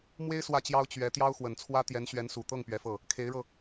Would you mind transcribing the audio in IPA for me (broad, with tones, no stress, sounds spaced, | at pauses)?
m w e˥ ɪ̯ s w ä˥˩ t͡ɕ j ɑ˥ ʊ̯ t͡ɕ ɥ ɛ˧˥ t̪ j ɑ˥ ʊ̯ x w ə˨˩ n t͡sʰ w ä˥ t̪ j ɛ˧˥ n ɕ ɥ ɛ˧˥ n s u˨˩ t̪ ɤ˥˩ ŋ p ɥ ɛ˧˥ f ɤ˥˩ | kʰ e˧˥ ɪ̯ ɻ ɤ˧